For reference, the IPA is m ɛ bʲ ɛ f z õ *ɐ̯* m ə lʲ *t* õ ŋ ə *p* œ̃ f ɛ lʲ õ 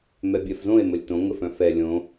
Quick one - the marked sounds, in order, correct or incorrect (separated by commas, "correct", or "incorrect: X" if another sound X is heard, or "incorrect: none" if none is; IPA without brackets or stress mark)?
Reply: incorrect: e̯, correct, incorrect: f